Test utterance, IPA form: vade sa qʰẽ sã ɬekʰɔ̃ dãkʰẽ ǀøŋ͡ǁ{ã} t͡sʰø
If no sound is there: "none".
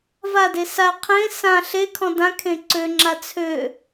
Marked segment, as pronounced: a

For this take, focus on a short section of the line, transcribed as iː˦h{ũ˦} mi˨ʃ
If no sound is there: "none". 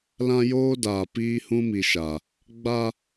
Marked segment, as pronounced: ũ˦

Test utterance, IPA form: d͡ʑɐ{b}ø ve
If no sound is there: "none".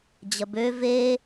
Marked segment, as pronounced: b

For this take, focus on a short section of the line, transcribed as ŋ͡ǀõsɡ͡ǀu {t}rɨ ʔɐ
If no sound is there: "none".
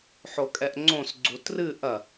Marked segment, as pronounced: t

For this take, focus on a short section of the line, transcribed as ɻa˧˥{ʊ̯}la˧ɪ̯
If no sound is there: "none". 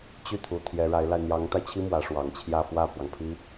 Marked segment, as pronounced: ɪ̯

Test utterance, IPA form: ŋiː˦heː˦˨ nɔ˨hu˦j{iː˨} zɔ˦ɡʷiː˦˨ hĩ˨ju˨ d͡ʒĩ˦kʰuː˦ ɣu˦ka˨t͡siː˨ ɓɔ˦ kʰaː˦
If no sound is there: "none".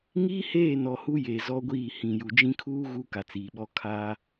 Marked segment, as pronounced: eː˨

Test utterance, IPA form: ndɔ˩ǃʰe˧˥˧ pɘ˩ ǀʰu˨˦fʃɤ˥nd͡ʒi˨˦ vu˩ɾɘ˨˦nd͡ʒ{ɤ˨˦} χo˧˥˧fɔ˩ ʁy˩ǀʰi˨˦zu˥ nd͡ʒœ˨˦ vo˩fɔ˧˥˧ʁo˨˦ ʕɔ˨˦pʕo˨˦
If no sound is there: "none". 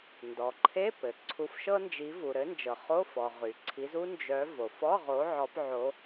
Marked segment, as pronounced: ɤ˩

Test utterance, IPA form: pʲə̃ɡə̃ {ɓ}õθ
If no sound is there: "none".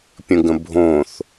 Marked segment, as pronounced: bʱ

